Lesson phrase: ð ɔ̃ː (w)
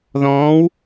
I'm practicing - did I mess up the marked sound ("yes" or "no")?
no